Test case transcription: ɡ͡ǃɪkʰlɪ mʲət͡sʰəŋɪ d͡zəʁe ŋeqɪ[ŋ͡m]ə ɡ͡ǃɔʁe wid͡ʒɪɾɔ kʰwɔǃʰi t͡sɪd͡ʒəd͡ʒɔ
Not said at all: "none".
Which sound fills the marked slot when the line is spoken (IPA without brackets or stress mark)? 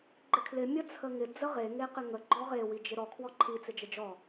ŋ